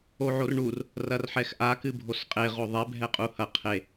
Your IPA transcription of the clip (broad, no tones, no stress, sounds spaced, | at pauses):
o ʕ o r ɳ u r | r ɐ r ħ ɛ x ʔ a k ɨ bʱ o s qʼ e ʁ o ðˤ ɛ bʱ ɛ qʼ u h ɐ qʰ e